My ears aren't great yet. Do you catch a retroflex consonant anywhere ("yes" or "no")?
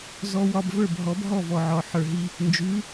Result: no